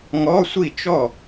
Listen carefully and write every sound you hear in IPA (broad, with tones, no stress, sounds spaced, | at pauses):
ŋ ɔ˧˥˧ sʷ i˥˩ t͡ʃ ɔ˥˩